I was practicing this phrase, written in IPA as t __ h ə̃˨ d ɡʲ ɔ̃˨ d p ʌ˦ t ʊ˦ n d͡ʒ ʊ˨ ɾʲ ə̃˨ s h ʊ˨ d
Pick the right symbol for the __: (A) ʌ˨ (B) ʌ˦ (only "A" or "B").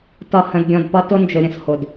A